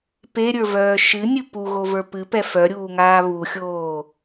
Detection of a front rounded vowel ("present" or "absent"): present